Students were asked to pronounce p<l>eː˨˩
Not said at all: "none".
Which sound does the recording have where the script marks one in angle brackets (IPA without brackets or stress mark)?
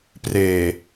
r